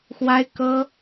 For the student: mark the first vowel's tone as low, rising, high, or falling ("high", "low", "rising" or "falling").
high